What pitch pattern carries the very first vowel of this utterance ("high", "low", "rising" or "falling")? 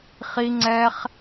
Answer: low